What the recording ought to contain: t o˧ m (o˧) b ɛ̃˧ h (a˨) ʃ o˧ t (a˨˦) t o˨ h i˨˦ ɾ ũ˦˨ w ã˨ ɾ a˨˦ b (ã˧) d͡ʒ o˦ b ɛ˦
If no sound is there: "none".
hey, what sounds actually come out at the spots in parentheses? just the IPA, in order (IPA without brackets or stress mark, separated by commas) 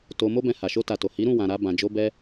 o˦, a˨, a˨, ã˧